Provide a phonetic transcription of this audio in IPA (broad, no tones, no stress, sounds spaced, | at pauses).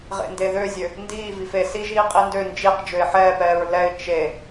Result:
ʁ ḛ n d e ð ø zʲ ø | n d iː v i f e s i ʒ iː qʼ i n d ø n d͡ʒ i q d͡ʒ ø ɪ̯ ħ ɛː p ɛː ɹ l ɛ ɪ̯ t͡ʃ e